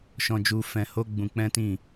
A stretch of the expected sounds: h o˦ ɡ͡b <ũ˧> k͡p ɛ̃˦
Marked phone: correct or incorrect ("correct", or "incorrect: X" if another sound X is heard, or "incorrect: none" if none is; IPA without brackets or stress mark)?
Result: correct